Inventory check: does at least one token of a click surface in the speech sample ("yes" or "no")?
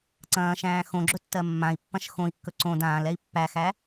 yes